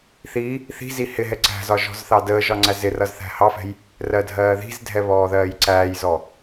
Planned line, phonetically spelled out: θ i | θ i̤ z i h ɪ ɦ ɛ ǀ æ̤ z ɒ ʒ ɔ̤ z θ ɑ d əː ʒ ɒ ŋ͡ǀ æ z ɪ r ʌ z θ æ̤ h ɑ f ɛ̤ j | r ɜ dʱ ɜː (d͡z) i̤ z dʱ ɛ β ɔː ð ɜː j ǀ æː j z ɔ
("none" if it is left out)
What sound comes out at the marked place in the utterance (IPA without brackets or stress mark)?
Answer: ð